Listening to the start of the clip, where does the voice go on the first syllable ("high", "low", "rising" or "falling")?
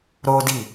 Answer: high